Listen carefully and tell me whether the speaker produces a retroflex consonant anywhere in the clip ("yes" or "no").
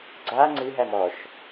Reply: no